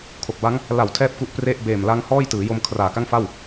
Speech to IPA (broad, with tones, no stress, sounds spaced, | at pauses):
kʰ o˨˩ k̚ b a˦˥ ŋ | l a˨˩ w tʰ ɛː˥˩ p̚ k u˦˥ ʔ p r e˥˩ ʔ b eː˨˩ m l a˦˥ ŋ h ɔː˥˩ j t ɯː˩˦ j o˧ m kʰ r aː˨˩ k a˥˩ ŋ f a˥˩ w